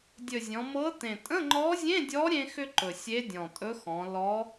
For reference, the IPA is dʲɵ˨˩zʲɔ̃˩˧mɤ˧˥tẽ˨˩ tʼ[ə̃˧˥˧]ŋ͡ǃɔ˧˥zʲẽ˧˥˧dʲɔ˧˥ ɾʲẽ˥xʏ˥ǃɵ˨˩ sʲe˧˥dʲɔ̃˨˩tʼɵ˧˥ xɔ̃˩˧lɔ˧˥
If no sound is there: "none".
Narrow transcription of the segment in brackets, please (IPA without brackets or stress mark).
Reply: ə̃˧˥˧